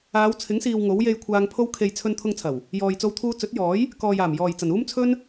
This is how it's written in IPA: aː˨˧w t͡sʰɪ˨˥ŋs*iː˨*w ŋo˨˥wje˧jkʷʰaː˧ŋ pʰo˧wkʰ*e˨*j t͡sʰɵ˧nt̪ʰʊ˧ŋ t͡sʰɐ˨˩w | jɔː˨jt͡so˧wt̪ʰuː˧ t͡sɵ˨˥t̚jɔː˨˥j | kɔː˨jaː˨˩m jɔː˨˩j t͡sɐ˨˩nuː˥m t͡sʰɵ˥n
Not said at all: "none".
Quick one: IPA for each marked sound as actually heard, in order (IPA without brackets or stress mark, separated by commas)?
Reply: iː˨, e˨